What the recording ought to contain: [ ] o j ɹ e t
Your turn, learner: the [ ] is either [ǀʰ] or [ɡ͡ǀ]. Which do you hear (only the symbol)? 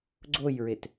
ɡ͡ǀ